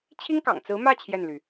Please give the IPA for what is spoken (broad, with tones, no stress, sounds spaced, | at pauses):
t͡ɕʰ i˥ ŋ k ɑ̰˨˩ ŋ t͡s ɹ̩˧˥ m ä˥˧ t͡ɕʰ j ɛ˥˩ n l y˩